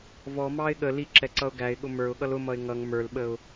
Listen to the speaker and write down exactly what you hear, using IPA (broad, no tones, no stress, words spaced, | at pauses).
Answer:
vɔmɑɪ̯ ɠə liǁɛǀʌʊ̯ ɡæɪ̯ɠʊ mə˞ʊ̯ɠʌl ʊmʌɪ̯ ŋʌŋ mə˞lɓəʊ̯